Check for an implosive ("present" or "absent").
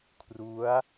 absent